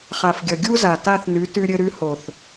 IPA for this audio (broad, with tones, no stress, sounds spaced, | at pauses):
χ a˨ f ɡʲ ʌ˨ ɡʲ u˦ z a˨ t a˦˨ θ n ʉ˨˦ t ʉ˧ ɾʲ ɘ˧ ɾ ʉ˧ h o˨ θ